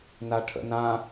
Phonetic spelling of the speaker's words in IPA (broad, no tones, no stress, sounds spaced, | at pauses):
n a ʈʰ ə̰ n ã